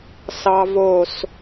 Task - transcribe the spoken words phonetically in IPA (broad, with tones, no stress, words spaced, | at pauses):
sɑ˥ vo˥˧s